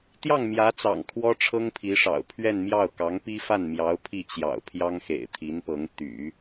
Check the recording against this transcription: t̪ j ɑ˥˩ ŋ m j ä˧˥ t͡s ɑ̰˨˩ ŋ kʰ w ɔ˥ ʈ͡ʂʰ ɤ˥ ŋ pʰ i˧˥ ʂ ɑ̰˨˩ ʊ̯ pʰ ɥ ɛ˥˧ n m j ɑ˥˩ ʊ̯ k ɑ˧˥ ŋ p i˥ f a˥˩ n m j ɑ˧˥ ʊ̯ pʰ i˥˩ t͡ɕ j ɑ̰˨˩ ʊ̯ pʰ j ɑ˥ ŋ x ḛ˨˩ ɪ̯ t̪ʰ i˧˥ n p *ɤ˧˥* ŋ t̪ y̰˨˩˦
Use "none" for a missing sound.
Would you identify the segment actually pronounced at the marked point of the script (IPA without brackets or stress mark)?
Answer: ɤ˧˥